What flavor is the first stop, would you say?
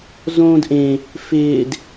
plain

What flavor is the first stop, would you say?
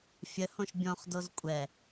plain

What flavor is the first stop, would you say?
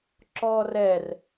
click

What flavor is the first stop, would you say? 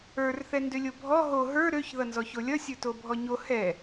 plain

